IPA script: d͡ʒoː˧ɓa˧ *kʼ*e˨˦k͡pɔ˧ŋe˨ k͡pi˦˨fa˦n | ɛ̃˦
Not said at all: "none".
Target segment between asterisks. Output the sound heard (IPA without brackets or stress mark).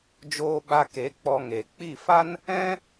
k